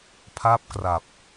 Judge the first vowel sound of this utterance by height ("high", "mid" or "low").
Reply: low